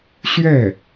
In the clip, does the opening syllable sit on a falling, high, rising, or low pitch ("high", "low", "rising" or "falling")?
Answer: falling